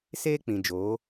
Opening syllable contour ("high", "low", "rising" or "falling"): high